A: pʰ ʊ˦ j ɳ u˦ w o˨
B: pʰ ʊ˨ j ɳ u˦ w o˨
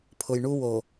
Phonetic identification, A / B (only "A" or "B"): B